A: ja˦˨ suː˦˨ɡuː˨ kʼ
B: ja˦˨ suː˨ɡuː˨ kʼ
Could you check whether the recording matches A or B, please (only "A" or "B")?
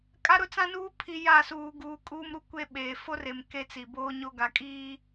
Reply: B